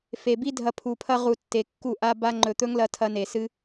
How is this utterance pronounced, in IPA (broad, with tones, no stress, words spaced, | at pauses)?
fe˨bi˦ dʱɐ˧pʰu˨ pʰɐ˧ʁu˨ tːe˨kːu˦˨ʔa˦ba˦ ŋ͡ǃɵ˨t̪ɵ˦ŋlɐ˧ tʰɐ˧ne˨sɨ˦